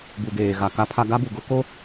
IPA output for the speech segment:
b u˨ ɡ eː˨ ɣ a˨ k a˦ pʰ a˦ ɡ a˦ b u˨ ɡ ʊ˦ k o˦

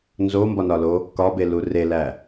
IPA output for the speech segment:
n z o m b ɒ n ɒ l o | k ɒ b e l u r e l æ

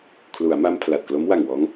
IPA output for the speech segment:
kʰ l u˩˦ a̯ m a˧ m pʰ l a˨˩ t̚ k l o˦˥ m w a˨˩ ŋ w ɔː˦˥ ŋ

